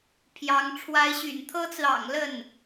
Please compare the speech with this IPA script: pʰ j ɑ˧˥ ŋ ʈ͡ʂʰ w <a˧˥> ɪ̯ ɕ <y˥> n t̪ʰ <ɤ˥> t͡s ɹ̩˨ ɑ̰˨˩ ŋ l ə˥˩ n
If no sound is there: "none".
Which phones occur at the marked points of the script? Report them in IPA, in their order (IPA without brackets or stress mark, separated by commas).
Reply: a˧˥, y̰˨˩, ɤ˥